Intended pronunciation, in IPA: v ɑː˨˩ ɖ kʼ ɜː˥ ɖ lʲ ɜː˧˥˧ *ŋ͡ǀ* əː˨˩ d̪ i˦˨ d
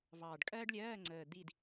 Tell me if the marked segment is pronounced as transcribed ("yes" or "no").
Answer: yes